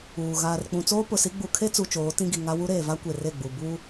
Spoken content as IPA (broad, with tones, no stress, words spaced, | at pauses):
uː˨ ɣaː˨rk͡pũ˨t͡soː˦ pʊ˨si˦ ɡ͡bu˨kʰe˦t͡su˨ t͡ʃoː˨˦tĩ˦ɡi˨ŋa˦ wu˦ɾeː˨va˦ kʷe˨re˦˨ɡ͡bu˨ bu˦